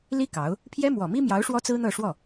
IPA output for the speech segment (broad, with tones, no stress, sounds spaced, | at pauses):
l i˥ k ɑ˧˥ ʊ̯ | pʰ j ɛ˥ m w ɔ˨˩ m i˥ m j ɑ˧˥ ʊ̯ ʂ w ɔ˥ t͡s ɹ̩˥ n̪ ɤ˥˧ ʂ w ɔ˥˩